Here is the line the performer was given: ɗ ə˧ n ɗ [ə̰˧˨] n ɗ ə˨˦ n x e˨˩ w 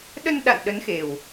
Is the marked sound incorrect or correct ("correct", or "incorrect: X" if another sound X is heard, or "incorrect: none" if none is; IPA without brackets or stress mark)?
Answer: incorrect: a̰˧˨